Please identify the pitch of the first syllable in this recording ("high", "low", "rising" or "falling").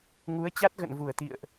rising